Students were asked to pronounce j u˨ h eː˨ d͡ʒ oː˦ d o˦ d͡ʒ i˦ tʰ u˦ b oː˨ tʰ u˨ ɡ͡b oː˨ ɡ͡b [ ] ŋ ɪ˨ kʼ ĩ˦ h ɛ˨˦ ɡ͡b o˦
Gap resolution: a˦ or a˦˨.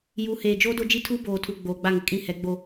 a˦˨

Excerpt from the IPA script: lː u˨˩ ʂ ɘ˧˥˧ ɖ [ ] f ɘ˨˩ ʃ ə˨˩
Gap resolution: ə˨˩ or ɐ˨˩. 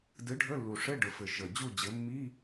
ə˨˩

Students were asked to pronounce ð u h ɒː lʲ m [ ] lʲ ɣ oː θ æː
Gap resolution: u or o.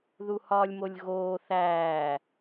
o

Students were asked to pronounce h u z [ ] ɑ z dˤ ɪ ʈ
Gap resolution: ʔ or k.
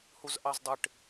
ʔ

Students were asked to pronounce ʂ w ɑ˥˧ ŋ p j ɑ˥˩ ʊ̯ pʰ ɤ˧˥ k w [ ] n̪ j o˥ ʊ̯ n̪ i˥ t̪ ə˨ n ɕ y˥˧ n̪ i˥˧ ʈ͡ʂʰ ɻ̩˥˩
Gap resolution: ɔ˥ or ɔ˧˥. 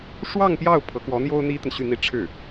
ɔ˧˥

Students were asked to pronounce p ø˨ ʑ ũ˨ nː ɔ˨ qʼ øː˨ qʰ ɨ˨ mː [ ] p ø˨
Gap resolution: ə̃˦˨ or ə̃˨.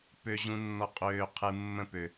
ə̃˦˨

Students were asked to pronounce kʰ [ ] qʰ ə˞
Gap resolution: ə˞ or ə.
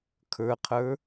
ə˞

